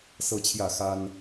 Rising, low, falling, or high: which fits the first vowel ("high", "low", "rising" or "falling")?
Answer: falling